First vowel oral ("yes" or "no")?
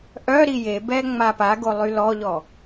yes